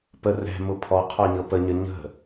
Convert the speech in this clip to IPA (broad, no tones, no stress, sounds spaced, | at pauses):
p ə r ɛ̤ m ʊ pʰ ɔ qʰ ɔ ɲ ɤ p ə ɲ ə ɲ ə̤